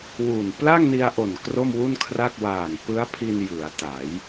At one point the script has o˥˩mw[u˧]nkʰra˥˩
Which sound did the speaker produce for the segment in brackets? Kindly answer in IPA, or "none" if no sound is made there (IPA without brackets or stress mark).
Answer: u˥˩